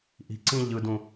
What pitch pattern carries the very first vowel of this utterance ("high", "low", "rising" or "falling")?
low